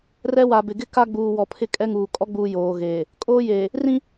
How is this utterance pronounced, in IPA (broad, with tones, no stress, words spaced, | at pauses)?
rɛ˦wa˨bɪ˨ ɡɪ˦ ka˦ɡ͡buː˨ wɔ˨pʰɪ˦kʼɛ˦ŋuː˨ kʼɔ˦ɡ͡buː˨ joː˨ ɣeː˨ | kʼoː˦jeː˨ | rĩ˦